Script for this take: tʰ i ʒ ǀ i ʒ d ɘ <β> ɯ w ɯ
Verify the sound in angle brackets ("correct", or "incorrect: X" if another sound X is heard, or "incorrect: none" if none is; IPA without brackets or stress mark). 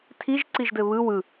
correct